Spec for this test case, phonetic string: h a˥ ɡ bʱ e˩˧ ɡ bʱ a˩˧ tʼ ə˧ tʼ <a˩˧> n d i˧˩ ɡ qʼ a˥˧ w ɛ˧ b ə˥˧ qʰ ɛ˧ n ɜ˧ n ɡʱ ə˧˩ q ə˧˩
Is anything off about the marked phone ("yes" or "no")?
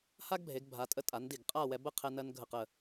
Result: no